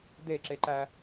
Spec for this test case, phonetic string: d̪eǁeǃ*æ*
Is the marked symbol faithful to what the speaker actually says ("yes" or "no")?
yes